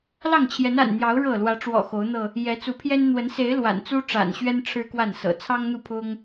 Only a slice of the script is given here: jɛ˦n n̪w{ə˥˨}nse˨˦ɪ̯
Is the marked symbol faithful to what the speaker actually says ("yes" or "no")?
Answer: no